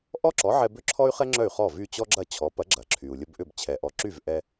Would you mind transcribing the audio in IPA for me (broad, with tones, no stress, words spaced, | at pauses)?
ʔɔ˥ǁɔ˩˥ʕɛ˧ bʏ˥ǁʰɔ˥y̯χɛ˥ ŋ͡ǁœ˥˩y̯χɔ˥˩ vy˥˩t͡ɕɔ˥ɡ͡ǁɐ˥˩ t͡ɕʰɔ˩˥pɐ˩˥ ɡ͡ǁɐ˩ǁʰy˩u̯ lʲə˧bʔʏ˥˩b t͡ɕʰɛ˩ʔɔ˩˥ ǁy˥˩v ʔɛ˧